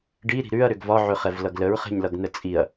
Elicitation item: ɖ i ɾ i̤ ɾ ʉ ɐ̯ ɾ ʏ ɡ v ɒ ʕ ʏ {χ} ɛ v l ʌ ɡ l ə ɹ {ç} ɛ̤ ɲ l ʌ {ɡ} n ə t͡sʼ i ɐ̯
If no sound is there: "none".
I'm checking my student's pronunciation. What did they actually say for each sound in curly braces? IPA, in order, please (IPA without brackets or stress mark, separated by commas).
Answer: χ, χ, ɡ